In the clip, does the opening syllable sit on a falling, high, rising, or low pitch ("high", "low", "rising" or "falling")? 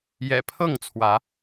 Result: low